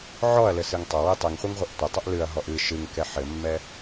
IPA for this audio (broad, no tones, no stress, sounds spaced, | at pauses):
ʕ ɔ ɐ̯ l ɘ s ɨ ŋ tˤ ɐ w i tˤ ɨ ŋ χʷ i ŋ ʁʷ ɛ ʔ tʷ ɐ tˤ ɐ ʔ l ɨ ɐ̯ ɦ ɔ ʔ ɨ ʃ ɨ ŋ k ɛ ħ ɘ mː ɛ